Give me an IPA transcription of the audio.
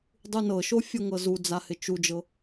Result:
dˤ u n ɤ ʃ o fʲ ɤ ŋ ɤ z u d͡z a h ɪ t͡ʃ u d͡ʒ ɤ

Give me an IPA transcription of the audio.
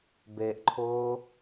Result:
b e ʔ ǃʰ ʊː

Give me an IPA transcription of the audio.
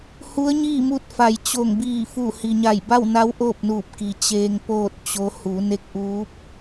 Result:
h u˧˥ ə̯ ɲ iː˥˨ m u˧ t̚ f a˩ j t͡ɕ o˧˩ ŋ b iː˧˩ f u˧˩ h i˩ ɲ a˧˩ j b a˥˨ w n a˧˥ w ʔ oː˥˨ p̚ n uː˧˩ p̚ k i˩ t͡ɕ eː˧ ŋ p oː˥˨ t̚ t͡ɕ o˧˥ h u˩˧ n e˧˥ k̚ ʔ uː˧˥ p̚

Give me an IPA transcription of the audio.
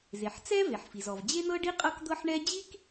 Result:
z e˩ ħ t͡s ɛ˥ v e˩ ħ f i˩ z ɔ˩ v d͡ʑ e˥ n̪ ɤ˥ ɖ i˥ qʼ ɤ˥ k d̪ ɤ˥ ħ ɳ ɛ˥ d͡ʑ i˥ k

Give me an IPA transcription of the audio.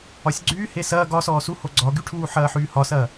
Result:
ɒ sʲ ɡ͡ǀ yː h e s ɐː ɡ ɒ s ɔː s u h o ɡ͡ǀ ɒ ɡ y ʈʰ uː ħ ɐː ħ yː h ɒ s ɐː

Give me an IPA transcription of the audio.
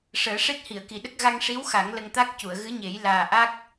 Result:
ʂ əː˨˩˦ ʂ e˦˥ t̚ h i˨˩˨ ə̯ k i˨˩˨ ɗ ə˦˥ k̚ ɣ a˧ ŋ ʂ i˧˥ w x a˨˩˦ ŋ l ə˧ ŋ t̪ a˦˥ k̚ c u˨˩˨ ə̯ ɣ ɨ˧˥ ɲ e˨˩˦ j l aː˨˩ ʔ a˦˥ k̚

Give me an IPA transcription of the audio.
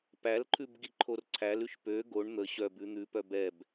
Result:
p æ l ǃʰ ʉ b ɡ i ǃʰ o r ǀʰ æ l ʉ ʃ p ø ɡ o ɳ n̪ ə ɕ œ b ʉ n̪ ʉ p œ b ɛ b

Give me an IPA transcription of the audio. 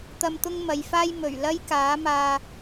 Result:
t̪ ɐ˧ m t̪ ʊ˥ ŋ m ɐ˨˧ j f aː˥ j m ɵ˨˩ ɥ l ɐ˥ j k aː˨˥ m aː˧

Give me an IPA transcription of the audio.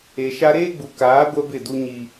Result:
e˨ ʃ a˦ ɾ eː˦ ɡ͡b u˨ k aː˨˦ ɡʷ ɛ˦ b ɪ˦˨ d u˦ ɲ i˦

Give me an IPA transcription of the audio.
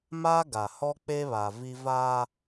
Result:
m a˦ ɡ a˨ h ɔ˦ k͡p e˦ β a˨ v i˦ v aː˦

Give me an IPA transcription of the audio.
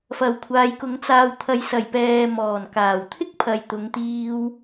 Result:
f ɐ˨ w kʷʰ aː˨˧ j k ʊ˨˥ ŋ t͡s aː˨ w t̪ʰ ɐ˨ j s ɐ˨˩ j p ɛː˨ m ɔː˨˩ n k aː˨˩ w t̪ʰ ɪ˥ k̚ pʰ ɐ˨ j t̪ ʊ˨˧ ŋ t̪ iː˧ w

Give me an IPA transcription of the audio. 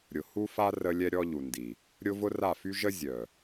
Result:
ɾʲ ʊ˨ h u˦ f a˦ r ə˦ lʲ ɛ˦ ɾʲ ɔ˦ ʎ u˨ n d i˨ | ɾʲ ʊ˦ v ʊ˦ r a˦˨ f y˦ ʒ ə˦ zʲ œ˨

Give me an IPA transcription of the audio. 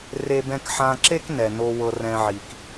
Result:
r e˧ b ɛ̃˧ k ħ ã˧ ǁ e˥ k n ɛ˩ n o˧ w ɤ˧ r ɛ̃˧ ʕ i˩ k

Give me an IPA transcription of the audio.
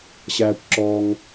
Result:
ɕ æː˧ kʷ ǁ ɔː˧ ŋ

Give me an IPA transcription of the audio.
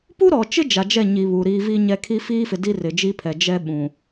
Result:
p u˦ ɾ ɔ˨ t͡ʃ ɪ˦ d͡ʒ a˨ d͡ʒ ɛ˦˨ ɲ i˨ β u˨ ɾ iː˦ v i˦ ɲ ɛ˦ kʰ i˦ f iː˦ f ɪ˨ d i˦ r ɪ˨ d͡ʒ i˦ pʰ ɛ˨ d͡ʒ ɛ˦ ɓ ũ˨

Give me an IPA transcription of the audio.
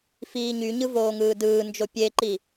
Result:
f iː ɲ y ɲ ɯ v oː ŋ ɯː d ɯː n d͡ʒ o pʲ e ǃ i

